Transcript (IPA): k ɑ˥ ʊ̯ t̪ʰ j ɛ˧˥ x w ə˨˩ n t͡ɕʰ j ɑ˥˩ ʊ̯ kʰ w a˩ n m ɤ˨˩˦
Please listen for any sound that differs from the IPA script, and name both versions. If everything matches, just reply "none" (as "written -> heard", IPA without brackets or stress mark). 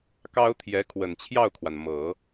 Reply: x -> kʰ